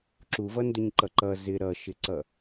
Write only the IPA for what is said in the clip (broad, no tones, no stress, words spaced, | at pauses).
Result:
ǁuvʌndʊɲǃʌ ǃʌ zɪ ɾʌʃɪǀʌ